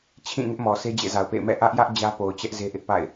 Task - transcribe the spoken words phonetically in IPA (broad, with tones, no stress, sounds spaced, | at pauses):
t͡ɕʰ ĩ˦˨ ŋ ɪ˦ ʔ m ɔ˨ sʰ e˦ d͡ʑ ḛ˦˨ z a˨ ʊ̯ p ḛ˦˨ ɪ̯ m ɛ̰˦˨ ʔ ä˦ ʔ j ä˦ ʔ d͡ʑ ä˦ p o˨ ʊ̯ t͡ɕ ɛ˦ ʔ z e˦ ʔ ɪ˦ ʔ p a̰˦˨ ɪ̯